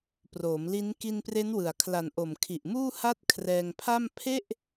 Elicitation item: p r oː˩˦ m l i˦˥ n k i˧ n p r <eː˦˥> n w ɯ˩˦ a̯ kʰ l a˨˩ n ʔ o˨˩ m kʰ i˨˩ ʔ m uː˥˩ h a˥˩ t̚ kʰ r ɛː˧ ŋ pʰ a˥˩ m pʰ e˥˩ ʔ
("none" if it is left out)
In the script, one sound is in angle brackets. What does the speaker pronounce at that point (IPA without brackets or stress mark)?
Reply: e˦˥